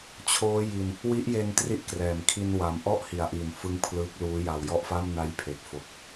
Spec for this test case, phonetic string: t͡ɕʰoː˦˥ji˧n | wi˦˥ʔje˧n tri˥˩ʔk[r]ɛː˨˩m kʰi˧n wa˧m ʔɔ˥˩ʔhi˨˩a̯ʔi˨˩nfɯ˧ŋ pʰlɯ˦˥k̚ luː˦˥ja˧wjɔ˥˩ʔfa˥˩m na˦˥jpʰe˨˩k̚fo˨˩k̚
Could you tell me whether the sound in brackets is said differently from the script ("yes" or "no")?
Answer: no